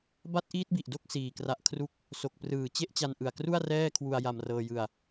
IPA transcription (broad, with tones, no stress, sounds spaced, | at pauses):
b a˦˥ t̚ ʔ iː˦˥ t̚ b i˨˩ ʔ d o˥˩ k̚ s iː˧ k r a˦˥ ʔ kʰ r u˦˥ k̚ | s o˨˩ k̚ p r ɯː˨˩ t͡ɕ e˥˩ ʔ t͡ɕ a˧ n ʔ ɯ˨˩ a̯ k r u˥˩ a̯ r ɛː˥˩ kʰ w u˧ a̯ j a˧ m r ɤː˧ j ɯ˧ a̯